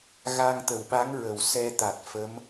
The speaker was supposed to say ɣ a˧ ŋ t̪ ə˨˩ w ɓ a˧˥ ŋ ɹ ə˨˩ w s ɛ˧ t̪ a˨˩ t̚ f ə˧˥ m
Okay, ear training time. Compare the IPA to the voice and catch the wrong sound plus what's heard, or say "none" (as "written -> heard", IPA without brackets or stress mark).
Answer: none